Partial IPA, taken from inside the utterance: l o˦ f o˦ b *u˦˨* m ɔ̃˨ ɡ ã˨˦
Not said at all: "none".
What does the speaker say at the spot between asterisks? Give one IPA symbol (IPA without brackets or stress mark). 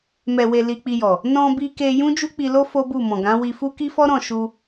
u˦˨